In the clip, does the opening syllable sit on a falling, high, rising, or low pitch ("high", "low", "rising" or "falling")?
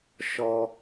high